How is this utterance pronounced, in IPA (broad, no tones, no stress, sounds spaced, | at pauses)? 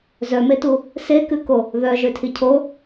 z œ m e t u | s e k ʉ k o | ð œ ʒ ø tʰ i cʰ o